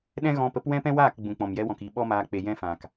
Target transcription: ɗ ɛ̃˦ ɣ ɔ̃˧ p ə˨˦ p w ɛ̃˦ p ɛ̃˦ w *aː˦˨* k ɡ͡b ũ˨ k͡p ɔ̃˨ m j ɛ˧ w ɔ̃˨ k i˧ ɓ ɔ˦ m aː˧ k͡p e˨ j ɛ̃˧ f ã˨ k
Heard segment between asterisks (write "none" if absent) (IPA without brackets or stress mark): aː˦˨